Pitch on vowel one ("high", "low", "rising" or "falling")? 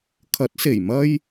rising